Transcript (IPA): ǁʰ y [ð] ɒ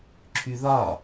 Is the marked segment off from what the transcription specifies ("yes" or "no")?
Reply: no